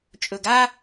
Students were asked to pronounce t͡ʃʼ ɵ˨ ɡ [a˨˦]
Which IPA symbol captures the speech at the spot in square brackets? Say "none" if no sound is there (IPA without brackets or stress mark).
a˦